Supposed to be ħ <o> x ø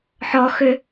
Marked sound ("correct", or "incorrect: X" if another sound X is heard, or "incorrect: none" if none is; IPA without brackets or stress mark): incorrect: ɔ